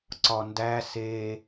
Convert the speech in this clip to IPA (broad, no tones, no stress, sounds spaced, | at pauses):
ǀ ɒ n d æ s e